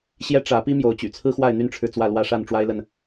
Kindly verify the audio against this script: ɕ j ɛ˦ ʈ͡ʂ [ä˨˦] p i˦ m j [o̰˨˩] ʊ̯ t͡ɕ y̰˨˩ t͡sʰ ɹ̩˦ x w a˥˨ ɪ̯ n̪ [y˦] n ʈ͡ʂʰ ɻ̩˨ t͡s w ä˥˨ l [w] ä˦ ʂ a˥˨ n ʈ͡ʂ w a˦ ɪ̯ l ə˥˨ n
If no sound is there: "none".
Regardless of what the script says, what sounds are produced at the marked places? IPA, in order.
ä˨˦, o˨˦, y˦, w

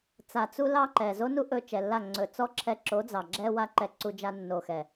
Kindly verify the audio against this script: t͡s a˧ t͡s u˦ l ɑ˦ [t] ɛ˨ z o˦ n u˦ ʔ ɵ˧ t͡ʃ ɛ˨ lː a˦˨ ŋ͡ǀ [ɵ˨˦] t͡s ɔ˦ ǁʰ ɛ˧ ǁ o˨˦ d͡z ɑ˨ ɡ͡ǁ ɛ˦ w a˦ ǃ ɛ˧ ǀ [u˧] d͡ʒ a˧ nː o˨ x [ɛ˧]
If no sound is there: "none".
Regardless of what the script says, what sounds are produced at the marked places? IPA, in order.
ǃ, ɵ˨, u˧, ɛ˨

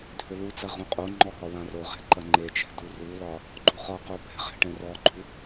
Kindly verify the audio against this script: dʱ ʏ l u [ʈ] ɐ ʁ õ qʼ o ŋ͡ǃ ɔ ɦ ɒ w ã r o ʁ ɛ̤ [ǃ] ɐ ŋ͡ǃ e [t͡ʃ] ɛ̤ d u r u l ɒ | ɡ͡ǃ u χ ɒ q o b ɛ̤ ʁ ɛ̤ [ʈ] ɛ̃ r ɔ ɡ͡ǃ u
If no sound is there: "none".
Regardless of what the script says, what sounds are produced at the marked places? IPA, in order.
t͡s, ǃ, t͡ʃ, ʈ

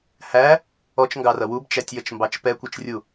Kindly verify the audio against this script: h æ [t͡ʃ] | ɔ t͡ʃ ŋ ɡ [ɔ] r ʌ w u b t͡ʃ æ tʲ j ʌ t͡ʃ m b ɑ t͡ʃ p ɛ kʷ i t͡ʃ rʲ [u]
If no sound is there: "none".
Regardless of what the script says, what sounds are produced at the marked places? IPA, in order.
none, ɑ, u

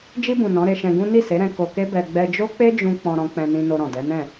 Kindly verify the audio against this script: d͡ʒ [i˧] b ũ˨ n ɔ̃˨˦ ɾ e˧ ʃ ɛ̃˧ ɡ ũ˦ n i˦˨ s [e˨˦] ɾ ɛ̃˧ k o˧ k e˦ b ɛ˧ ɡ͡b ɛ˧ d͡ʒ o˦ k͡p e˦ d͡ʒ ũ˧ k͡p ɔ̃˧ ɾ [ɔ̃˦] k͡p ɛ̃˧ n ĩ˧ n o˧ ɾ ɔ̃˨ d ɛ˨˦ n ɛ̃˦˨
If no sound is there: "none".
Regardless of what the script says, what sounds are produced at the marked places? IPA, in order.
i˧, e˨˦, ɔ̃˧

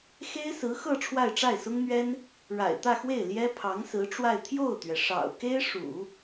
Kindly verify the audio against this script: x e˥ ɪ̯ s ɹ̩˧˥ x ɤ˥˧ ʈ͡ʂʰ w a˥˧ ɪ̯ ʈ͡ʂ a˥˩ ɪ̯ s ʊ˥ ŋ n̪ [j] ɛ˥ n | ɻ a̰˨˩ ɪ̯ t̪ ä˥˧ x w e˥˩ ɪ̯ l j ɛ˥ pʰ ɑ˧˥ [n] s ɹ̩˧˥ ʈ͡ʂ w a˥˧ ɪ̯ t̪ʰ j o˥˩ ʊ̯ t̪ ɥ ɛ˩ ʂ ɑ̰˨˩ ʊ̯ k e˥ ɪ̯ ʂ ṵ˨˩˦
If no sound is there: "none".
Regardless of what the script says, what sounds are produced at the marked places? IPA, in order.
ɥ, ŋ

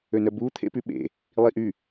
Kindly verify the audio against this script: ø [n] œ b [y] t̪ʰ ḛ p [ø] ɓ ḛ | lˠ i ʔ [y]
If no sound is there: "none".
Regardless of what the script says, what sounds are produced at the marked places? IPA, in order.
n, u, y, y

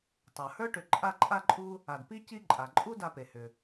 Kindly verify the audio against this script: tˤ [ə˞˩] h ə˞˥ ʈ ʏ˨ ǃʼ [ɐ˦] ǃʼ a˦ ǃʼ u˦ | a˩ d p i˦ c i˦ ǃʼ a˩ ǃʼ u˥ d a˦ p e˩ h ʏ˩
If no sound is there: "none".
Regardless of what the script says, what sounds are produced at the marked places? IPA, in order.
ə˞˩, a˦

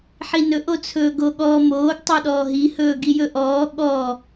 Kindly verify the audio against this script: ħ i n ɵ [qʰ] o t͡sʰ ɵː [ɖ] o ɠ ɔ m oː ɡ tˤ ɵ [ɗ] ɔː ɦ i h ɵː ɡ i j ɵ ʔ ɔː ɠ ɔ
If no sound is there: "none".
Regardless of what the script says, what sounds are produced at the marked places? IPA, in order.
ʔ, ɡ, ɗ

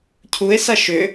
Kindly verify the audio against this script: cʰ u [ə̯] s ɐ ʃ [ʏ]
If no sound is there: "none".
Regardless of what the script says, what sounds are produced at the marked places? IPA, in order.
ɪ̯, ʏ

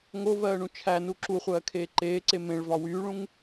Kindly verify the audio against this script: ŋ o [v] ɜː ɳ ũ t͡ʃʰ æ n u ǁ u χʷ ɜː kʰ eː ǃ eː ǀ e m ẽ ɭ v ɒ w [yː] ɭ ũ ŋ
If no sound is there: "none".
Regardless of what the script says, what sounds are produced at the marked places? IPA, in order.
v, yː

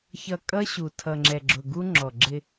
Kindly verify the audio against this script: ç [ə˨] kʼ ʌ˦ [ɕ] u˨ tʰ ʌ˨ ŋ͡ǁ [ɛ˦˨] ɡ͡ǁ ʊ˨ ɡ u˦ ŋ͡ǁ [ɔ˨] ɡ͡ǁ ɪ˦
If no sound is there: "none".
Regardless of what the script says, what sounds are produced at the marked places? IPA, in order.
ʌ˨, ɕ, ɛ˨, ɔ˨

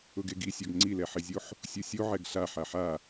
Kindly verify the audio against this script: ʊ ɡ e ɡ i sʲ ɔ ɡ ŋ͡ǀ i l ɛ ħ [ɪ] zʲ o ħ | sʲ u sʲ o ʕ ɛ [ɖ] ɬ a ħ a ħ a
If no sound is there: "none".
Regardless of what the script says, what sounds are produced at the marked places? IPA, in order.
ɪ, ɡ

